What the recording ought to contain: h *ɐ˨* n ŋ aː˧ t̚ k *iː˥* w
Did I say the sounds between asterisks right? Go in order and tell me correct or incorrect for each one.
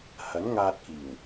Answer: incorrect: ɐ˨˥, incorrect: iː˨˩

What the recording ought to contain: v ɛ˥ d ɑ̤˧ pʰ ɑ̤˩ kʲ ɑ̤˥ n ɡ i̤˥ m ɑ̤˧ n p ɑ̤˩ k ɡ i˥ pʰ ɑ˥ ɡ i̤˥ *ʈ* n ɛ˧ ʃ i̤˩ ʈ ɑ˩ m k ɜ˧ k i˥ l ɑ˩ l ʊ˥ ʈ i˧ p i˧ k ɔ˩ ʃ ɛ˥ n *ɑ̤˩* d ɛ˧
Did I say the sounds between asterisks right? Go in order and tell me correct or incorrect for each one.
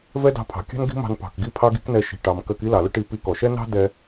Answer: incorrect: k, incorrect: ɑ̤˥

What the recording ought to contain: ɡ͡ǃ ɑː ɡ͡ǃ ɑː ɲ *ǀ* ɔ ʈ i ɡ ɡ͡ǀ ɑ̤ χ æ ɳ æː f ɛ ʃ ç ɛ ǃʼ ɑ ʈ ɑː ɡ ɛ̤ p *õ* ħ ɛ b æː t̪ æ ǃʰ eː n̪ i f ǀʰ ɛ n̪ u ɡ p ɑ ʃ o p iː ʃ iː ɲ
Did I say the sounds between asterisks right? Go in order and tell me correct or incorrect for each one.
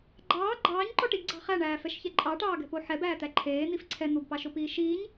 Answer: incorrect: ǃ, incorrect: o

